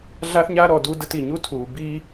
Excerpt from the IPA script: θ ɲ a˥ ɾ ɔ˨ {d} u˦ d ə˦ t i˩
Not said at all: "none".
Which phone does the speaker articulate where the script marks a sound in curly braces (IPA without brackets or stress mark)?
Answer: d